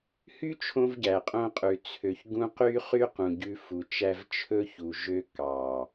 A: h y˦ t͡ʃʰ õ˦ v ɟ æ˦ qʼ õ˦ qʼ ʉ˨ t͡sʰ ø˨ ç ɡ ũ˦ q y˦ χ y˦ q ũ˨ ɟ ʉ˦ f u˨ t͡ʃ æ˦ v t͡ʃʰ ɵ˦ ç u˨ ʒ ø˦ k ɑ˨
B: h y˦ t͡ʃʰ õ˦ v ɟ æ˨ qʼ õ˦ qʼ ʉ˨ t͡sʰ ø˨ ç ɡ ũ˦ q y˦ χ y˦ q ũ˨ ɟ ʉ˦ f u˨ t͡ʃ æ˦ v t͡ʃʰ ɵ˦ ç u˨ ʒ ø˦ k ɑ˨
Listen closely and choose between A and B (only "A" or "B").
B